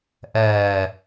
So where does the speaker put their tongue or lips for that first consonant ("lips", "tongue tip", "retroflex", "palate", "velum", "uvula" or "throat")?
throat